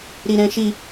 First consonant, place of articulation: alveolar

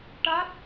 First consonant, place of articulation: retroflex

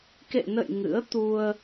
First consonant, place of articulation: velar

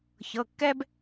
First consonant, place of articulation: palatal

